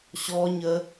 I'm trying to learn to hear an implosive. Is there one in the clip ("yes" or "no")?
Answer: no